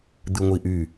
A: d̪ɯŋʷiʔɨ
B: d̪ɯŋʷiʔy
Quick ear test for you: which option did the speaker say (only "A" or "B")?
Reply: B